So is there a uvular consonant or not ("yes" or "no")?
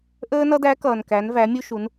no